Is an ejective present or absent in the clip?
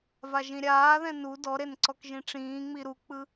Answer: absent